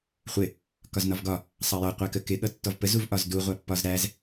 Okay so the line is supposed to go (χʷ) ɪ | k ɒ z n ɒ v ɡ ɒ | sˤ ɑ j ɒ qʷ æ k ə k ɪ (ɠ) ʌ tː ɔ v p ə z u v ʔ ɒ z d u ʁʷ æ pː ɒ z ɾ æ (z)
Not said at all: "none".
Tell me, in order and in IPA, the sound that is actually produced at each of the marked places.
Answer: χʷ, ɠ, z

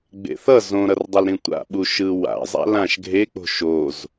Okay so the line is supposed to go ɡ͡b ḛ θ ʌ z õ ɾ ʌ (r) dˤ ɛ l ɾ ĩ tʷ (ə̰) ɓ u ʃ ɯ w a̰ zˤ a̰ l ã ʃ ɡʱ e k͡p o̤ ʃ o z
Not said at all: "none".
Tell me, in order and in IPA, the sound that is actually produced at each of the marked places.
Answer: r, a̰

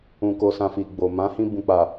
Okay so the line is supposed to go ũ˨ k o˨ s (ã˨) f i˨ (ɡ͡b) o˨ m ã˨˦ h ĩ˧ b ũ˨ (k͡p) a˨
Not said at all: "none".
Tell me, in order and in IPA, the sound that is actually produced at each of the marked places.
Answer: ã˨, ɡ͡b, k͡p

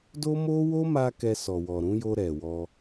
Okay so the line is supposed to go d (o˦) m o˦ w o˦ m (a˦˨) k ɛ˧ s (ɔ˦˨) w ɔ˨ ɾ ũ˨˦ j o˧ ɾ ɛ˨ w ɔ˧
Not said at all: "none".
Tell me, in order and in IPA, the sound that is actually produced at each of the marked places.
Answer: o˦, a˧, ɔ˨

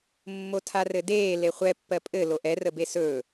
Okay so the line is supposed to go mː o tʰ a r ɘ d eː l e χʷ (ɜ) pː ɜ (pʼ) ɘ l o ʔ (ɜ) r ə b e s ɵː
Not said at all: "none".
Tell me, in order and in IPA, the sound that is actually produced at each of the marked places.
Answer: ɛ, pʼ, ɛ

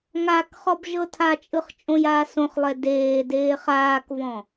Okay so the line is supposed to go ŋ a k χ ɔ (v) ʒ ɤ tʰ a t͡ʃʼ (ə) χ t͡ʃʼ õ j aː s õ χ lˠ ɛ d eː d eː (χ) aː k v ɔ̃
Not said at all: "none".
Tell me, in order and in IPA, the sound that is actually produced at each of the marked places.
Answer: b, ɯ, χ

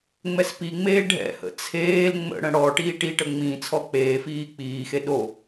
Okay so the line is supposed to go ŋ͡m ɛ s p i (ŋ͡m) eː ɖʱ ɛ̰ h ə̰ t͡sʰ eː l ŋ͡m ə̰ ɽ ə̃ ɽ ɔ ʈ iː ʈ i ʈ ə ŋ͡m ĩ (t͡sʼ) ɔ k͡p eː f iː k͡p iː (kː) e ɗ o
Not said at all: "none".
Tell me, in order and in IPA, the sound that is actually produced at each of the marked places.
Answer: ŋ͡m, t͡sʰ, x

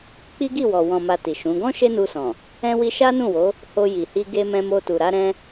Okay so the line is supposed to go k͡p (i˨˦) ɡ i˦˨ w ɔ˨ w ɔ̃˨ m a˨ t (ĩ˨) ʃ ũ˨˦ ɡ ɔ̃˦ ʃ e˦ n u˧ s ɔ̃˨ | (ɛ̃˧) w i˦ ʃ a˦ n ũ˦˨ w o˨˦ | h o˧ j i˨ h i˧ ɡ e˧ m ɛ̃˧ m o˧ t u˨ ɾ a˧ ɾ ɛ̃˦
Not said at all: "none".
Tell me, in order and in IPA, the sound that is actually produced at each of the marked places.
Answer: i˦, i˨, ɛ̃˦

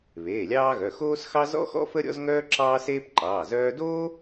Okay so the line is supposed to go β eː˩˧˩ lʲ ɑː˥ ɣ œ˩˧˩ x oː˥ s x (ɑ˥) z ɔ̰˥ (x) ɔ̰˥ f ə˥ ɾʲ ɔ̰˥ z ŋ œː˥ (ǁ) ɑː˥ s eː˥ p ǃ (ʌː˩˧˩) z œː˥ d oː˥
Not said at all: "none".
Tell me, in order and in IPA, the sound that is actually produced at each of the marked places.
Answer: ɑ˥, x, ǁ, ɑː˩˧˩

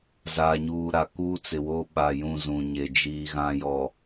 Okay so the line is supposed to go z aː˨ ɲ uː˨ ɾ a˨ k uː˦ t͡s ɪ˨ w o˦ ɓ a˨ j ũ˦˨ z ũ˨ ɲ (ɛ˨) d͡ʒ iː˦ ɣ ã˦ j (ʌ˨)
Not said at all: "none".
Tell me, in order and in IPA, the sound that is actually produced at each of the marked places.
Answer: e˨, ɔ˨

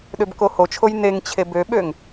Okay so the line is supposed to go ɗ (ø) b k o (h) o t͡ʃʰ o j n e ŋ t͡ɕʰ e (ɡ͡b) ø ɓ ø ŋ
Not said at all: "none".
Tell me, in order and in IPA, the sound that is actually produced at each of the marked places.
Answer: ø, h, b

